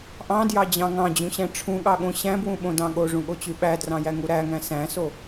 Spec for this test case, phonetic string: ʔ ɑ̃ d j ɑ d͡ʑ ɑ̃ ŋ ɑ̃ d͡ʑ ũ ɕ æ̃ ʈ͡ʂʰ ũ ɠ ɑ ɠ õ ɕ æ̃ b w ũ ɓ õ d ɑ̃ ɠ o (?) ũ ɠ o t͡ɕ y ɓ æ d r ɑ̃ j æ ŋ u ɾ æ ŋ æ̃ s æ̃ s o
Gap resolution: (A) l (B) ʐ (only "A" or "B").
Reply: B